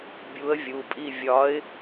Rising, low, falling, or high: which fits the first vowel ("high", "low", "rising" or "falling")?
rising